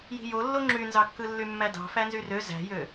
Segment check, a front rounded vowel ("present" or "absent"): present